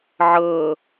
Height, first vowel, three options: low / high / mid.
mid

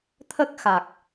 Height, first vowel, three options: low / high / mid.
mid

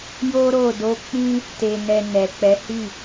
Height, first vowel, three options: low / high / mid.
mid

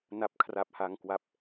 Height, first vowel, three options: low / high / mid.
low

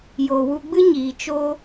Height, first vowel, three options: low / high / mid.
mid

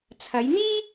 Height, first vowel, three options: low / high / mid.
low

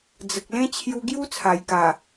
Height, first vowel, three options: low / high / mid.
mid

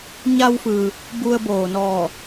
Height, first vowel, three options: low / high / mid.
low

